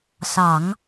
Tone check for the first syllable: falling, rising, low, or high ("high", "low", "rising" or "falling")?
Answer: low